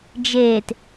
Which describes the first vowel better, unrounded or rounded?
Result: unrounded